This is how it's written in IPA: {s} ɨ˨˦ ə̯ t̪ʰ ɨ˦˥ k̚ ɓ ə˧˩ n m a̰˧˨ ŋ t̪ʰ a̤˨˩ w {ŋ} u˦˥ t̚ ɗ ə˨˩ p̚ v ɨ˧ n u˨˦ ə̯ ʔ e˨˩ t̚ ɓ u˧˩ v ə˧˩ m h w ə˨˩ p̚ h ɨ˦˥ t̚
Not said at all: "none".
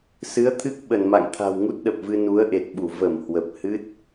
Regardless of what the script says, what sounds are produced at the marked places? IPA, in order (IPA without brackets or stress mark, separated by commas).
s, ŋ